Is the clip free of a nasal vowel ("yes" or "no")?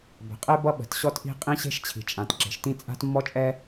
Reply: no